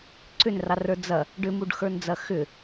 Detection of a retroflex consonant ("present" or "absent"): present